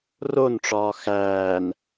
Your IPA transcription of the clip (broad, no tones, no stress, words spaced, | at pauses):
ronʈ͡ʂɒː xæːn